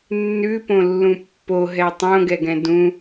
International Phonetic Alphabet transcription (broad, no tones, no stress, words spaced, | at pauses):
nːʉpõlːũ pːoɦɛ tˤõɡɛɡɛ̃ dũ